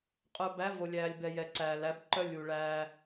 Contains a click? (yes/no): yes